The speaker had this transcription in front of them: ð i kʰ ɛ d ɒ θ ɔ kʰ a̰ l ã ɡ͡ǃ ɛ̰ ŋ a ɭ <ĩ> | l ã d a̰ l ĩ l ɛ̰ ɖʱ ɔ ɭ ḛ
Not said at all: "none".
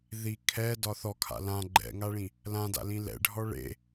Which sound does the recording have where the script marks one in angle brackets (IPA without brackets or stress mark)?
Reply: ĩ